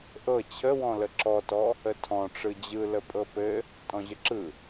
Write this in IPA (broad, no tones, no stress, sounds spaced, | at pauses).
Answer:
ʔ ɤ t͡ɕʰ ə w ɔ̃ l ə ǁ ɔ t ɔ | ə tʰ ɔ̃ ʈ͡ʂ ɯ d͡ʑ ɯ l ə pʼ ɤ p ɘ | tʼ ɔ̃ ʑ ə ǁ ɯ